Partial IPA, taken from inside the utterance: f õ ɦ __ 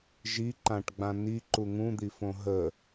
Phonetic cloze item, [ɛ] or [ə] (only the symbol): ə